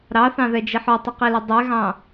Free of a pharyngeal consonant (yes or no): no